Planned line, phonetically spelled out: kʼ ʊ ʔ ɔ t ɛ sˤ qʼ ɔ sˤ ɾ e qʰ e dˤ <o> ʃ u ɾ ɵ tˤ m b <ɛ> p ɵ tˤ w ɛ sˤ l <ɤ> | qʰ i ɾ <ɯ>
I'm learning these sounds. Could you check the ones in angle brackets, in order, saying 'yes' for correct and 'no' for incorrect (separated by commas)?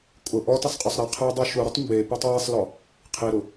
no, no, no, no